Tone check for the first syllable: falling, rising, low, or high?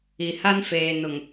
low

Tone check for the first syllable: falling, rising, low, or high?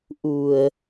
low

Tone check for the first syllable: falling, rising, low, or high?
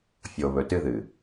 low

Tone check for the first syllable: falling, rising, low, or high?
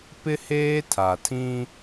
high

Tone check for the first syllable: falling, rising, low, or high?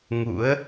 rising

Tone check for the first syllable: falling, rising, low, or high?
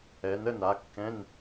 rising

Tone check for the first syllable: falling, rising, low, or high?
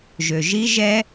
low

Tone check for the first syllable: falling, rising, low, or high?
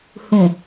low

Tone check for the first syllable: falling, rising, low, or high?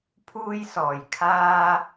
high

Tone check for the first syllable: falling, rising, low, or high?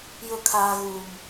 high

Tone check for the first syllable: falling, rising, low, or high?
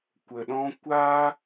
low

